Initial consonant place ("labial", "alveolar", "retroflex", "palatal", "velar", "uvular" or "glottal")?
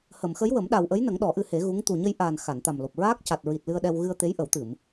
glottal